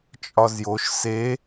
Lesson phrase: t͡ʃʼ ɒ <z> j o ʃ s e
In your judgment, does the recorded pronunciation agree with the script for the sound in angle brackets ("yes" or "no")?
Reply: yes